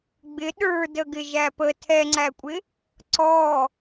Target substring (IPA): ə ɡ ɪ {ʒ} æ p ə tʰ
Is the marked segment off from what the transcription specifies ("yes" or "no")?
no